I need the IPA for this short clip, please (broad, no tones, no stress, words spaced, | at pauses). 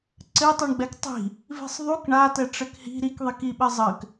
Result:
ǀɘtˤuɳɡ͡bɛk tˤi̤ | vi̤sˤðˤuk ɳatɛ ʈ͡ʂɘkhi̤ ɾikðˤik iɓɘzˤɘk